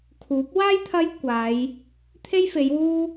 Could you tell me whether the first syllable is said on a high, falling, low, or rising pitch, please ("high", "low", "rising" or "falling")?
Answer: rising